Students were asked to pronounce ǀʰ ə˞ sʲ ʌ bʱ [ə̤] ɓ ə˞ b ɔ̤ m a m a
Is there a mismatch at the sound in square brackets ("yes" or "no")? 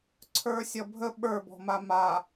yes